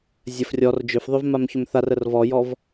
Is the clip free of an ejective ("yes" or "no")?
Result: yes